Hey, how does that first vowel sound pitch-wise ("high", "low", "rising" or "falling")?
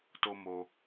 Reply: high